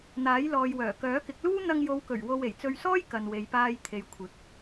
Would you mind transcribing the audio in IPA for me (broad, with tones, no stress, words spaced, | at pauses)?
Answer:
n̪aː˨˥jlɔː˨jwœː˨˩ kœː˨˥kɪ˨˥k̚luː˥ n̪ɐ˧ŋjo˨˧wkɵ˨˩ɥ wo˧we˨˩j t͡sɵ˧ɥsɔː˥j kɐ˨nwe˨jpaː˧j t̪ʰe˨jkʷʰɪ˨˥k̚